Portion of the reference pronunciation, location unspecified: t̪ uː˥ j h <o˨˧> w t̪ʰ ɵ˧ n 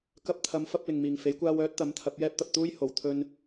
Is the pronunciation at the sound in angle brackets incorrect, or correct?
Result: incorrect